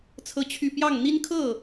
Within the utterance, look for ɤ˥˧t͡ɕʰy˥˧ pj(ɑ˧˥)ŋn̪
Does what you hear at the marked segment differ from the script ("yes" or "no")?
yes